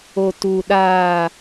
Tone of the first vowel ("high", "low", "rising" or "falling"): low